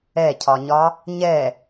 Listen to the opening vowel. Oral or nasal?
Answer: oral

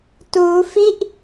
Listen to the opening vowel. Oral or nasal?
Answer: oral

